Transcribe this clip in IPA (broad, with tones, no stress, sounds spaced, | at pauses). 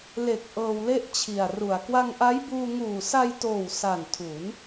l e˨˩ k̚ ʔ ɤː˧ w l e˥˩ ʔ t͡ɕʰ i˨˩ a̯ r u˨˩ a̯ k w a˧ ŋ ʔ a˦˥ j b uː˧ ŋ uː˨˩ s a˧ j t oː˨˩ w s a˨˩ n tʰ u˩˦ n